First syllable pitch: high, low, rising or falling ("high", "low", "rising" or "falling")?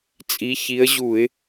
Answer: rising